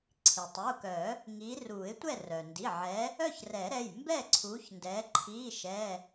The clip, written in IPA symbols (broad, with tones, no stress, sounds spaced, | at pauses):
ǀʰ i˩ tˤ u˩˧˩ k œ˨˩˦ | ŋ iː˨˦ r uː˨˩˦ ɪ̯ tʷ ɛ˥˨ r œ˩ n d i˩˧˩ ʕ ɛ˨˦ | œ˥˨ ç r ɛ˨˩˦ ɾ ɛ˩˧˩ j m b ɛ˥˨ ǀʰ uː˨˦ ç n d ɛː˨˦ ǃʰ iː˧˥˧ ʃ ɛ˧˥˧